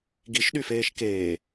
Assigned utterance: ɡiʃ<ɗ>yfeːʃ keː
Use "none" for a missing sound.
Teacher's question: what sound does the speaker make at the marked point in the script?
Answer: ɗ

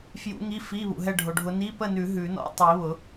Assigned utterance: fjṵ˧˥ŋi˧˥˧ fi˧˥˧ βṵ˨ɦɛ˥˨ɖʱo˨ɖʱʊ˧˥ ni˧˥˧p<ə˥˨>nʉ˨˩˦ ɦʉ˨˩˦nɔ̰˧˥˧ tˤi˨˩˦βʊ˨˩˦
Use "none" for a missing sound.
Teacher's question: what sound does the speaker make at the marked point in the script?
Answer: ə˥˨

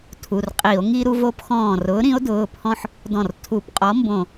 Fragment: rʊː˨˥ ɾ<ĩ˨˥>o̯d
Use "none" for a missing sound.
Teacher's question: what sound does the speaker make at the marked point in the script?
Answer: ĩ˨˥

